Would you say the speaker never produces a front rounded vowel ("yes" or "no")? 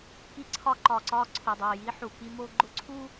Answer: yes